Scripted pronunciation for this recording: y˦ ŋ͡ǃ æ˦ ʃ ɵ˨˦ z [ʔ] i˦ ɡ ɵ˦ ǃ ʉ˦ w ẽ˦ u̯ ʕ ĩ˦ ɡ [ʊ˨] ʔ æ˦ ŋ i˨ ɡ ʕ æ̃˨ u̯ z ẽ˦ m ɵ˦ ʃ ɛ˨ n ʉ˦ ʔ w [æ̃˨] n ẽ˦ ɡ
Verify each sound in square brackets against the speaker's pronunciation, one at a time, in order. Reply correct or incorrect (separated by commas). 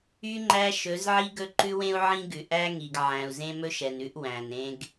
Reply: incorrect, incorrect, correct